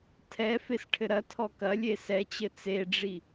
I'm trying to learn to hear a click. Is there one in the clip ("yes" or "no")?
no